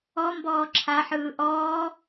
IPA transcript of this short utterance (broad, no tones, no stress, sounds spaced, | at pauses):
ɔ m b ɔː ǁʰ a ħ ɯː ʔ ɔː